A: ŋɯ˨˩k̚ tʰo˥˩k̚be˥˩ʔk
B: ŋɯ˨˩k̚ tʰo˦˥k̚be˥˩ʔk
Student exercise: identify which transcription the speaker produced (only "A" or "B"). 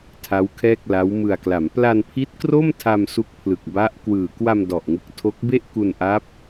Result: B